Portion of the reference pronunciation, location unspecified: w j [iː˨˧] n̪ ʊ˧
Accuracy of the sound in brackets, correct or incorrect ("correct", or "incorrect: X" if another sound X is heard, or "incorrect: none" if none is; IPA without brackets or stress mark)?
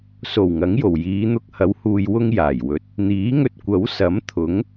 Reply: correct